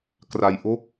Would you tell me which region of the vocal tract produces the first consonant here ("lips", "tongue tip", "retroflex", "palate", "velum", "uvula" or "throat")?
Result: velum